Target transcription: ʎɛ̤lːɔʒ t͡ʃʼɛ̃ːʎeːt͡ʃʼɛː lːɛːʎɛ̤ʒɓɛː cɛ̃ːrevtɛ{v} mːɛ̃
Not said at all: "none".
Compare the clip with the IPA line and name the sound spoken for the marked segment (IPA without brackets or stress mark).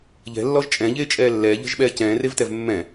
v